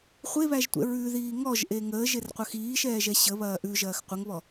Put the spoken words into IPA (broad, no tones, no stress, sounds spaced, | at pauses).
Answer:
χʷ e β æ ʒ tʷ ɛ̰ ɹ ʉ ð iː ŋ ɔ ʒ ʔ e ŋ əː ʒ e r qʷ ɐ x iː ʃ ɛː ʒ ɛ ɕ ə β ɐː ʔ ʉ ʒ ɐː x qʷ ə ŋ β ɔ